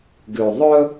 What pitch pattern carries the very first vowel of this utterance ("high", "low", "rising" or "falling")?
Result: low